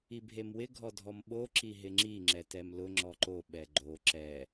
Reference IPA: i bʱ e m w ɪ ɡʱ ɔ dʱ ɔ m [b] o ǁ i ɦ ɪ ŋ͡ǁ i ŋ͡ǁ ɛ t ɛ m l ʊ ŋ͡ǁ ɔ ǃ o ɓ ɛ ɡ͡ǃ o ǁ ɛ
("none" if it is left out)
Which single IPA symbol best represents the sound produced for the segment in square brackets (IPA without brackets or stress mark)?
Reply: ɓ